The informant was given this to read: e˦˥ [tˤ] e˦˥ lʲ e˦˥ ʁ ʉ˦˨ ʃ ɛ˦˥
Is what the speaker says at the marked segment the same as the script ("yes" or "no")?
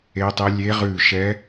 yes